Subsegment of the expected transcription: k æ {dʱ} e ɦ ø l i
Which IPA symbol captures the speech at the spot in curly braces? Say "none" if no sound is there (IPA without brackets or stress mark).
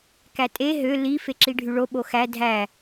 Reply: tʼ